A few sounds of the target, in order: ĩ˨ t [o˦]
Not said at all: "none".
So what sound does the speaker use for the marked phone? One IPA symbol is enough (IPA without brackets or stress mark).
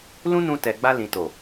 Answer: o˨